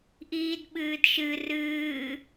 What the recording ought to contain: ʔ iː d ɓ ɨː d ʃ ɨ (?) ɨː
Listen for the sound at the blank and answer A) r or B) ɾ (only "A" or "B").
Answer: A